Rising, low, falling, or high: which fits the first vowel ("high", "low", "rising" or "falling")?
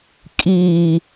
low